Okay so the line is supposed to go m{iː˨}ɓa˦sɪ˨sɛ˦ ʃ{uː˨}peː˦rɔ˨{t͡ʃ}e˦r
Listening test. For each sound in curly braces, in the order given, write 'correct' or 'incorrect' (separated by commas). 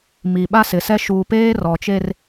incorrect, correct, correct